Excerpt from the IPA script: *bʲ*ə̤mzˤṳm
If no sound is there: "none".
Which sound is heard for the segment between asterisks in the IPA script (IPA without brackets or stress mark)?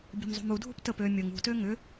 bʲ